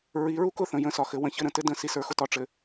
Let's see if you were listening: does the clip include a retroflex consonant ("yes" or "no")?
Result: yes